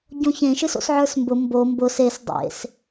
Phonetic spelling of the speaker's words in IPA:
ɟ õ ç ẽ ʃ ɨ s o̰ s ʕ ə˞ s m b ʊ m b o m b ʊ s e s dˤ ḛ s

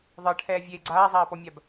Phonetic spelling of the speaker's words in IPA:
ðˤ ɤ ʈʰ ɛː vʲ eː ɡ͡ǀ aː zˤ aː p ɔ mʲ a b

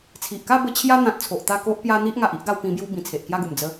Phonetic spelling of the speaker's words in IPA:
t͡sʰ i˨ ʔ k a˥˧ b ə˦ t͡ɕʰ j a˦ n̪ ã˨ t̚ t͡sʰ o˨ ʔ t̪ a˥˧ k o˦ ʔ p j a˦ n̪ i˦ ʔ ŋ a˨ ʔ i˦ ʔ ɡ a˧ w p ĩ˧ b j u˦ b ĩ˨˩ t͡sʰ e˨ ʔ k j a˥˧ ɡ u˨˩ m d͡z ə˨˦

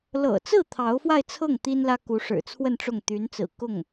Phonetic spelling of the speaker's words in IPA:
l ɤ̰˨˩ t͡s ɹ̩˥˩ t̪ʰ ɑ˧˥ ʊ̯ f w a˥˧ ɪ̯ t͡sʰ ɤ˥˩ ŋ t̪ i˥ n l ä˥ k u˧˥ ʂ ɻ̩˨˩ t͡sʰ w ə˥˧ n ʈ͡ʂ ʊ˥˩ ŋ t̪ y˧˥ n t͡s ɹ̩˨˩ k ʊ˥˩ ŋ

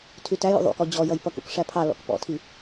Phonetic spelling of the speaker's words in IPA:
tʰ y t æ j ṵ ðˤ ṵ k ɔ d͡ʑ ɔ j ʌ j p ʌ k ṵ k ʂ æ pʰ ɑ l ɔ̰ k p ɔ̰ tʰ i

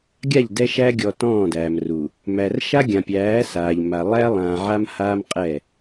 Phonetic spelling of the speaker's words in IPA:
ɡʲ a˦˨ ʎ d ɛ˦ ʃ æ˦ ɡʲ ɔ˨ t ɔ̃ː˦˨ d æː˨ m r u˨ | m æ˨ r ʃ a˦ ɡʲ ã˨ pʲ æː˨˦ s aː˨ ʎ m a˨ lˠ æ˦ lˠ ãː˨ ʕ a˦ m h aː˦ m qʼ ɛ˦˨

